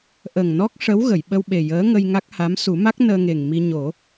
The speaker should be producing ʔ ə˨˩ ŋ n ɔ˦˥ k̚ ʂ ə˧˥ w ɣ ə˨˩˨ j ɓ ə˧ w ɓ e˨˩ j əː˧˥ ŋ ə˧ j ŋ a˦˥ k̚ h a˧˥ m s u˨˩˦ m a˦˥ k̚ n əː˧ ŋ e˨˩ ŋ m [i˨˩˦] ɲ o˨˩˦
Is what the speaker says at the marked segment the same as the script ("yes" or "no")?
no